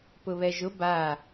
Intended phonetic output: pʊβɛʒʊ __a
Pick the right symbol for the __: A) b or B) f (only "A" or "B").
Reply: A